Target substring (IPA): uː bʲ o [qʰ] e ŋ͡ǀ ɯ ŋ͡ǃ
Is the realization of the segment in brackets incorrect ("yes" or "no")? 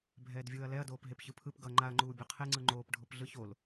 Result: no